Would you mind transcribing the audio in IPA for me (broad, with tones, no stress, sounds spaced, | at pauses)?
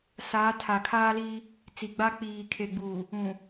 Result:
s aː˨˦ tʰ a˨ kʰ aː˦ l iː˦ | t͡s i˨ ɡ͡b a˦ k͡p iː˨ kʰ e˨ ɡ͡b uː˨ | ũ˨